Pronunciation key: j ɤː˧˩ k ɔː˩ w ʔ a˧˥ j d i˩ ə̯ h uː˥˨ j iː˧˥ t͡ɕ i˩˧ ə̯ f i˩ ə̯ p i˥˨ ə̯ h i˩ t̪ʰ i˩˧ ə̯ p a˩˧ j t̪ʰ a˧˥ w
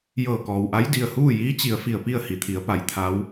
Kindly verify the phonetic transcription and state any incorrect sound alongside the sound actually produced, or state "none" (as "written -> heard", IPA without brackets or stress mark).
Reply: none